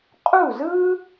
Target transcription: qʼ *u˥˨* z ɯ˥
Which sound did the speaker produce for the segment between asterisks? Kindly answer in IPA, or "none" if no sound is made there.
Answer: u˥˨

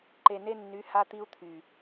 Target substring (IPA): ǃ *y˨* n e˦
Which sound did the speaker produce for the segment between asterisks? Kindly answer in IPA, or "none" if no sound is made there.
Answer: e˨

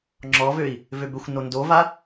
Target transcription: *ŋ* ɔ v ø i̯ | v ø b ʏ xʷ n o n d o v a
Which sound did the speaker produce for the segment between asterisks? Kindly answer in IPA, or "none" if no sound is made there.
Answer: ŋ͡ǁ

